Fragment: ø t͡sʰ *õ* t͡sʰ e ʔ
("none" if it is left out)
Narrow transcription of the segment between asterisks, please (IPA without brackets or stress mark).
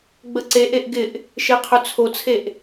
o